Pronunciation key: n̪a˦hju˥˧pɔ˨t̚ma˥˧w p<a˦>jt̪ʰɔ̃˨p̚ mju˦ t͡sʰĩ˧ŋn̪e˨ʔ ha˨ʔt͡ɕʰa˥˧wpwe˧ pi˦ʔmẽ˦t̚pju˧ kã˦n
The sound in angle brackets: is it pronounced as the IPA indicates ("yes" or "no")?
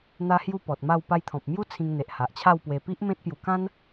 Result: no